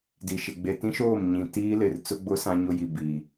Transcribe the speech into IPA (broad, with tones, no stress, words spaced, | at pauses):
di˨ʃɪ˨ ɡ͡be˨tĩ˦ʃoː˦˨m ɲĩ˨ tiː˦lɪ˨r t͡sʊ˦ɡ͡bʊ˦ sã˦ɲʊ˦ji˨ biː˨